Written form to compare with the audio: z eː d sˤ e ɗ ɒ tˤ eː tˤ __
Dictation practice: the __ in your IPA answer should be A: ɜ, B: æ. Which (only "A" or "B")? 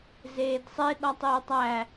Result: B